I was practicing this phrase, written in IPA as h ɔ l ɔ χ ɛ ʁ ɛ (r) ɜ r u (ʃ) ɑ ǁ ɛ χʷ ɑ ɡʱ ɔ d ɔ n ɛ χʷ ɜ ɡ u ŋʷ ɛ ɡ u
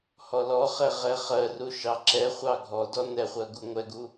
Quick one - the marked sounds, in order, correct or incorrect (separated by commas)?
incorrect, correct